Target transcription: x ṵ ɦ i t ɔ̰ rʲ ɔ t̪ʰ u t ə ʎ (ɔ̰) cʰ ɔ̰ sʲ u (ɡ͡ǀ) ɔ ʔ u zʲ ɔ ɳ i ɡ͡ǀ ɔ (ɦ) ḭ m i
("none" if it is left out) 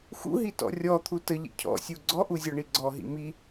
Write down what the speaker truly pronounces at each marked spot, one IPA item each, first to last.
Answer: ə̰, ɡ͡ǀ, ɦ

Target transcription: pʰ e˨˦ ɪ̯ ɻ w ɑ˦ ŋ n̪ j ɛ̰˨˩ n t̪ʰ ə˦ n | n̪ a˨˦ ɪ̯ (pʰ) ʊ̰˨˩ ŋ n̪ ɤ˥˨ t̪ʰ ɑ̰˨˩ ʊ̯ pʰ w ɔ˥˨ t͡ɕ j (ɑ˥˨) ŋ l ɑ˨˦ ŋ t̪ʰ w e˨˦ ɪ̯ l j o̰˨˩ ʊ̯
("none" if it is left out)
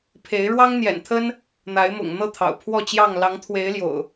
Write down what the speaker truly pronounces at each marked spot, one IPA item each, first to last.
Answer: m, ɑ˥˨

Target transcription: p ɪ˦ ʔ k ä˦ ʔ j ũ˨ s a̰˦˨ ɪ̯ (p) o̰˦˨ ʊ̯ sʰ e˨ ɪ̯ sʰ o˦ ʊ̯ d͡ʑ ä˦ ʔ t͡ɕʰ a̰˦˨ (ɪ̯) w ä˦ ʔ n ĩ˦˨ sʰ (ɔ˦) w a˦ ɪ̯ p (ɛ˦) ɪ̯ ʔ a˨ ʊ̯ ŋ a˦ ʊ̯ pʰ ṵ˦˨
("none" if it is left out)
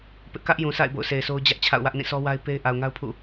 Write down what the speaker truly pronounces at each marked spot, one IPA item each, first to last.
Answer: b, ʊ̯, ɔ˦, e˦

